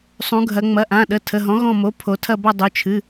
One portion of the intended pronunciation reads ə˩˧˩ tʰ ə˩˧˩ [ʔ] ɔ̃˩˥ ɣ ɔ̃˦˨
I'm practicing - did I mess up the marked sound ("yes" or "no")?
yes